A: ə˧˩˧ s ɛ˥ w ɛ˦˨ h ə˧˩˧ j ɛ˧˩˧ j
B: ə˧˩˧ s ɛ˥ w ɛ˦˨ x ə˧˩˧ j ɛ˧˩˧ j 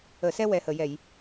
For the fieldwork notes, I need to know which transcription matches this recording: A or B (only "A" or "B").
A